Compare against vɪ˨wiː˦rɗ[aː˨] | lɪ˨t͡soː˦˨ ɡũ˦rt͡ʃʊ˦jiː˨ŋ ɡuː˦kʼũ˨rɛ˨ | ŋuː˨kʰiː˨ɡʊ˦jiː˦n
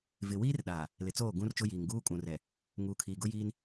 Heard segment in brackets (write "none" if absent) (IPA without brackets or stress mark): aː˨